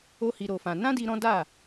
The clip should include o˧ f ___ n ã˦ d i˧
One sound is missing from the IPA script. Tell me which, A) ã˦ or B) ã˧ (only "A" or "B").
B